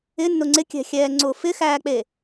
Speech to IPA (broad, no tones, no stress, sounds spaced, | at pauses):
ɪ nː ʊ ŋ͡ǀ ɪ kʲ ɛ̤ xʲ ɛː ŋ͡ǀ ʊː f ɪ x æː k͡p e